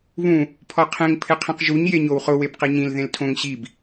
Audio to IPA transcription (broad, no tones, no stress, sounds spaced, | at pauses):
β ũ | pʰ ɔ qʰ ẽ ŋ pʰ ɪ qʰ ĩ q ʒ u ɲ j e ɲ o w χ ʊ w e b q i ɲ ĩ l ð ẽ l tʰ õ ŋ ɕ i b